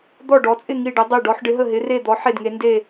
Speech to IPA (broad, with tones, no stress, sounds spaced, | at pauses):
d̪ ɔ˥˧ ɖ ɔ˧˥ t͡sʼ ɪ˥˧ ŋ i˥˧ ɖ ə˧˥ dˤ ɛ˥˧ ɖ ɔ˧˥ ħ ɖ ɪ˧˥ ɦ ə˥˧ ɦ ɪ˧˥ r e˥˧ d̪ ɔ˧˥ ħ e˥˧ d ŋ e˧˥ n d e˥˧